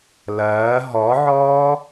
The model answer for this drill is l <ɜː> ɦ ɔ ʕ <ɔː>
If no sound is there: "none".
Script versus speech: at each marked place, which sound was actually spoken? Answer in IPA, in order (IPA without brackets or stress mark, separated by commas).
ɜː, ɔː